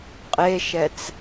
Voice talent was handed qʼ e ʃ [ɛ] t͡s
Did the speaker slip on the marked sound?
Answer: no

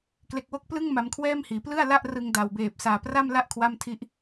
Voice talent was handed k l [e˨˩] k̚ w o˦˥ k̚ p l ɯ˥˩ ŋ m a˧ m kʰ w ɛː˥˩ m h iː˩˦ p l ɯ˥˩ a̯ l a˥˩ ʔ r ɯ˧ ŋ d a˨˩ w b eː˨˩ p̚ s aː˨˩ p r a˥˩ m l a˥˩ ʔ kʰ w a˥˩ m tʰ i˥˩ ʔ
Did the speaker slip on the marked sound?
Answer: no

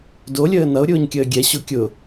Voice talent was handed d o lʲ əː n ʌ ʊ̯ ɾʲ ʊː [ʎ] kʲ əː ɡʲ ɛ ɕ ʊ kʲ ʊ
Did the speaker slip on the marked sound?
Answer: yes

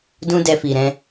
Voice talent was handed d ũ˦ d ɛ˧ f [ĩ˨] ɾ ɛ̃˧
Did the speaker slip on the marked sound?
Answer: yes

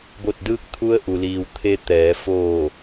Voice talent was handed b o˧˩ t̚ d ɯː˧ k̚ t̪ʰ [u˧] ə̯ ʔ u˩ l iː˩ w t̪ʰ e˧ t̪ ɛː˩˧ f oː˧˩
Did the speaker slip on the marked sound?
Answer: no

